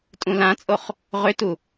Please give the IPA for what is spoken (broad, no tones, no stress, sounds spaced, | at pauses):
tʼ ũ l ã t͡sʼ o χ | ʁ ʏ t u